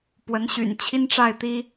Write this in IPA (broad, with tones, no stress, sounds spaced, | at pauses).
p w ə˧˥ n ɕ y̰˨˩ n t͡ɕʰ i˥ n ʈ͡ʂ a˥˩ ɪ̯ t̪ i˥